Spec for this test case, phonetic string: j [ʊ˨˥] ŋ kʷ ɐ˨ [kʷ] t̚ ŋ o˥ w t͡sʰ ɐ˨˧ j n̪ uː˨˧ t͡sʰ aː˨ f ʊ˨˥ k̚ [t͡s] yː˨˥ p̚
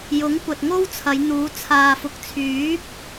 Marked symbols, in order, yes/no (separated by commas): yes, no, no